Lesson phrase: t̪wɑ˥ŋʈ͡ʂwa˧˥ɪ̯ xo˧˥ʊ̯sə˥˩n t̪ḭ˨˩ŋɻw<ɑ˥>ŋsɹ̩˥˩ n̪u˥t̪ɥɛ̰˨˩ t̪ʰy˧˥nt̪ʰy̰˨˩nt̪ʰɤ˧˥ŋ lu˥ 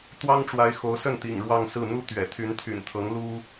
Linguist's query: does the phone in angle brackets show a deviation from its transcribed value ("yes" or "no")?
yes